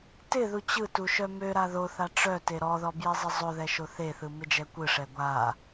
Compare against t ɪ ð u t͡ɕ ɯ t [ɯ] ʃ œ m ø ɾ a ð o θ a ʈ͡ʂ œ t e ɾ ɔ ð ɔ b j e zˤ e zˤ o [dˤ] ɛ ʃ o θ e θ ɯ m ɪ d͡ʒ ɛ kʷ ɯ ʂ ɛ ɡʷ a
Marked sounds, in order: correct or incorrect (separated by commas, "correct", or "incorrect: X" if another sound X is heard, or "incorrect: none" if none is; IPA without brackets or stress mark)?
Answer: incorrect: u, incorrect: ð